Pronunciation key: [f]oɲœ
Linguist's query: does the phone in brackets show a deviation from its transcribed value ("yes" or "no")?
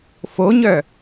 no